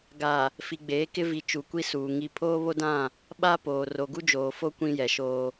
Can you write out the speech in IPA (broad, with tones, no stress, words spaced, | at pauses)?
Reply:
ɡa˨ | fi˨ɡ͡beː˨˦kɪ˦ vi˨ t͡ʃu˨kʷi˦suː˨ ŋi˨pʰoː˦βo˦dã˦˨ | ɓa˦poː˨ ro˨ɡu˦d͡ʒoː˨fo˦ kʷĩ˦jɛ˨ʃoː˦